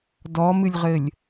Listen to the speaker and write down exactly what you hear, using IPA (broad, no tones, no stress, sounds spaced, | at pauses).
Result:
d ɔ m ɨ lʲ ʁ ɘ lʲ